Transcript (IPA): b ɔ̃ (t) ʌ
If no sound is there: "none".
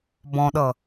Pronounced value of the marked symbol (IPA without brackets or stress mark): ɗ